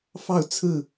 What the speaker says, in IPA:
f ɑ˥˨ ʊ̯ t͡sʰ ɹ̩˥˨

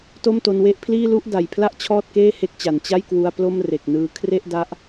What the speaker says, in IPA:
t o˥˩ m t o˧ n w e˥˩ ʔ pʰ l iː˥˩ l u˥˩ ʔ d a˨˩ j pʰ l a˥˩ ʔ t͡ɕʰ ɔː˥˩ t̚ k eː˥˩ h e˦˥ k̚ t͡ɕ a˩˦ n t͡ɕ a˥˩ j k w u˧ a̯ p l o˥˩ m r e˨˩ k̚ n ɯː˧ kʰ r e˥˩ ʔ d a˦˥ ʔ

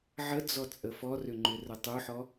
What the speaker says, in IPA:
ʕ ə d͡z ɔ t͡sʼ ə f ɔ r ʏ ŋ͡ǃ ʏ r ə tˤ u ħ ɔ

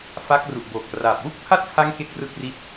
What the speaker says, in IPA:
f a˦˥ k̚ r u˨˩ ʔ b o˨˩ k̚ r aː˨˩ p̚ w u˥˩ k̚ pʰ a˥˩ t̚ kʰ a˦˥ ŋ k e˥˩ k̚ r ɯ˥˩ k̚ r i˦˥ t̚

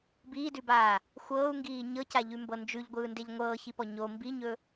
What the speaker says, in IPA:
b iː d ʉ b aː | xʷ ɤː u̯ ŋ ɡ iː ɲ ɤ c a ʎ ʉ m b ɤ n d͡ʒ ʉ ʎ ɡʷ ɯː n d e ʎ ŋʷ ɤː ç i p ɔ ɲ o m b i ɲ ɵ

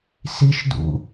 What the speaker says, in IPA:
s i ʃ d ṵ

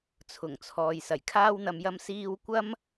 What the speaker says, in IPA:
t͡sʰ ʊ˨˩ ŋ t͡sʰ ɔː˨ j s ɐ˨˩ j kʰ aː˥ w n̪ ɐ˧ m j ɐ˧ m s iː˥ w kʷ ɐ˥ m

